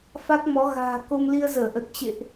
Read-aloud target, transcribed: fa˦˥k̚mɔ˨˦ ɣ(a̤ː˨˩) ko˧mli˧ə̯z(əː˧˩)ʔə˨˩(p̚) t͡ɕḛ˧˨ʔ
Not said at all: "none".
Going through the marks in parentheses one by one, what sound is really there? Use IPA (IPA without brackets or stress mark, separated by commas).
a̤ː˨˩, əː˧˩, t̚